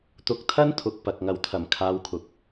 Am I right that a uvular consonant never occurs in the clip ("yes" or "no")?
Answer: yes